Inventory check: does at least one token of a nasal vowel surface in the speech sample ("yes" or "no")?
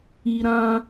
yes